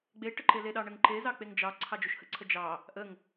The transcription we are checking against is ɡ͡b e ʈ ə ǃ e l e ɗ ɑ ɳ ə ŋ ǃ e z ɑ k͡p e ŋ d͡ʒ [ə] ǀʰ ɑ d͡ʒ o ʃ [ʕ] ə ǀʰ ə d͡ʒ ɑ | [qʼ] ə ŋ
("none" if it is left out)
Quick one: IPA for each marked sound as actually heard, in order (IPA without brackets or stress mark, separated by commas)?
ɑ, h, ʔ